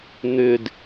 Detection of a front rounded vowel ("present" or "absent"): present